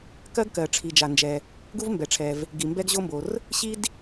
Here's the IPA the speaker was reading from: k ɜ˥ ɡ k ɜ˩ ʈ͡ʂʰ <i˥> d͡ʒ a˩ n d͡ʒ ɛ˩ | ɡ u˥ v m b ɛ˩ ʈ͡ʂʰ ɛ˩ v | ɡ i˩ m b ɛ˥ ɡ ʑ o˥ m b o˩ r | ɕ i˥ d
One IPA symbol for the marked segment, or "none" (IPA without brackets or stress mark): i˩